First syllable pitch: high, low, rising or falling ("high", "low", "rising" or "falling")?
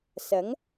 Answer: rising